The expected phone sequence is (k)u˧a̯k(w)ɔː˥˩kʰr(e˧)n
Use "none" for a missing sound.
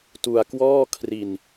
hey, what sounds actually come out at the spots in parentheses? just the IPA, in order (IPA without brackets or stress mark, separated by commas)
t, w, i˧